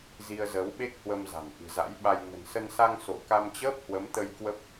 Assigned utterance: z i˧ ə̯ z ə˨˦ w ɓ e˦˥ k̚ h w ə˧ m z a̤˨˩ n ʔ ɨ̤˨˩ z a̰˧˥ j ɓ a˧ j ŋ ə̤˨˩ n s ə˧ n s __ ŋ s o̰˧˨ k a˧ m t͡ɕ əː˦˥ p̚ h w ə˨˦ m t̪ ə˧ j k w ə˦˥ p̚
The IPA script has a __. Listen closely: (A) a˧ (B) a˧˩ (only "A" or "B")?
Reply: A